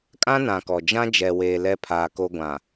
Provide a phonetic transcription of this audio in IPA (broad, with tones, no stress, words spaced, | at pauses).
kʼã˦nã˨ kɔ˨ d͡ʒã˦d͡ʒɛ˨weː˨ lɛ˦pʰaː˨ko˦ ɡʷã˨